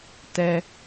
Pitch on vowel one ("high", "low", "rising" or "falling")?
low